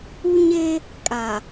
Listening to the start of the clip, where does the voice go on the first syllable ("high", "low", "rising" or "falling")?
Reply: high